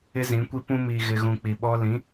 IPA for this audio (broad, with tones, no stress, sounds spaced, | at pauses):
ɪ˦ z ĩ˨˦ kʷ i˦ p ũ˦ m i˨ ɣ ɪ˨ ɣ ũ˨ k͡p i˨ ɓ ɔ˦ l ĩ˨˦